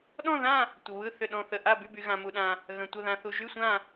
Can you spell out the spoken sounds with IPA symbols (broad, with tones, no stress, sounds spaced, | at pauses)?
ɗ ɔ̃˥˧ ð ã˥˧ | tʷ ə˧ β ɯ˥˧ θ ʏ˥˧ ɗ ɔ̃˥˧ θ ə˥˧ ʔ a˥˧ b y˥˧ b y˧ ɣ ã˧ m u˧ ɗ ã˧ | ɣ ə̃˧ tʷ ə˥˧ ð ã˧ θ u˧ ʒ y˥˧ sʷ ã˥˧